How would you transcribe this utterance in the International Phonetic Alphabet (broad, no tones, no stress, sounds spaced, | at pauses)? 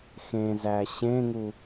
x ẽ z æ ɕ ẽ ŋ u